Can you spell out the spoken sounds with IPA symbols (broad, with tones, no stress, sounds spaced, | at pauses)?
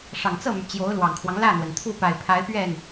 ʂ ɑ˨˩ ŋ t͡s ɤ˥˩ m y˩ t͡ɕ j o˧˥ ʊ̯ l w ɑ˨˩ ŋ kʰ w ɑ˦ ŋ l ä˥˩ n̪ w ə˩ n t̪ʰ u˥˩ p a˨˩ ɪ̯ pʰ a˧˥ ɪ̯ p ɥ ɛ˥˩ n